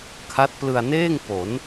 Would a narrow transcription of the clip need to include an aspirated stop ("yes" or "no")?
yes